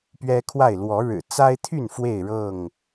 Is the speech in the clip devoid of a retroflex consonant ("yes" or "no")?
no